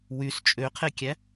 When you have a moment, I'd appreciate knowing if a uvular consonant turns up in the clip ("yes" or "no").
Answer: yes